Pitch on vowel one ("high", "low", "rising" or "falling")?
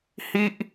high